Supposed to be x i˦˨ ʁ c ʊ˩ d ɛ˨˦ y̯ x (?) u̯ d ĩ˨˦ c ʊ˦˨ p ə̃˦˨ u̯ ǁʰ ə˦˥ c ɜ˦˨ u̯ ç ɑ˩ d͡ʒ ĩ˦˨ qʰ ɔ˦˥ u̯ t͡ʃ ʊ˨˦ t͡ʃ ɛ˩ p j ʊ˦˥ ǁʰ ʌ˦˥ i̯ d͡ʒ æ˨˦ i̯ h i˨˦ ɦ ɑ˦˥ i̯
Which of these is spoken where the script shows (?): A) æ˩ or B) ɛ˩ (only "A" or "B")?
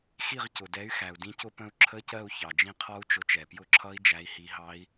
A